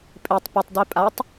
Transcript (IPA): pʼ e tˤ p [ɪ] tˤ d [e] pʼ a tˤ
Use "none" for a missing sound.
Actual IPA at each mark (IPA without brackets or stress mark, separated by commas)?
ɪ, e